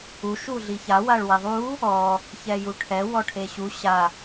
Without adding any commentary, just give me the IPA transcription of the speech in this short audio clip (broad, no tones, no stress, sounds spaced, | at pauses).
u ʃ u ɮ i ç a w a ɭ w e ðˤ u | ɔ | ç ɛ j u ʈʰ ɛ w ɔ ʈʰ e ɕ u ɕ a